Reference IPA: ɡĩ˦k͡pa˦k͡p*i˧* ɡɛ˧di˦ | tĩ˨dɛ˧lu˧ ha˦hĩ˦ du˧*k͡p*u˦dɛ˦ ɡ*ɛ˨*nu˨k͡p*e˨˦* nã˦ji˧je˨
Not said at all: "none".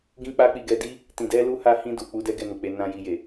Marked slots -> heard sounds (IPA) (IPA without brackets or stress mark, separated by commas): i˧, k͡p, ɛ˦˨, e˨˦